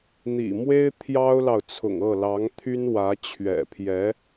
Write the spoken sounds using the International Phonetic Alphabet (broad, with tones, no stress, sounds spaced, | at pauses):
n̪ ḭ˨˩ m w e˥ ɪ̯ t̪ʰ j ɑ˥ ʊ̯ l ɑ˨ ʊ̯ t͡sʰ ʊ̰˨˩ ŋ ɤ˥˩ l ɑ˧˥ ŋ t̪ʰ y˥ n w ä˧˥ t͡ɕʰ ɥ ɛ̰˨˩ pʰ j ɛ˧˥